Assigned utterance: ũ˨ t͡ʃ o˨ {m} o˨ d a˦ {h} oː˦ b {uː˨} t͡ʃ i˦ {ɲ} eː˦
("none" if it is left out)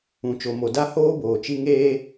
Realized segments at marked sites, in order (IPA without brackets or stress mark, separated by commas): m, h, oː˨, ŋ